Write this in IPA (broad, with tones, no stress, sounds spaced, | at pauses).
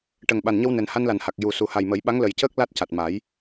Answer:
ʈ ə˨˩ ŋ ɓ a˨˩ n ɲ ə˧ w n ɛ˨˩ n h a˧ n l a˨˩ n h a˨˩ k̚ j u˨˩ s u˨˩ h a˨˩ j m ə˨˩˦ j ɓ a˧˥ ŋ l ə˨˩ j c əː˦˥ k̚ l a˦˥ t̚ c a˨˩ t̚ m a˨˩˦ j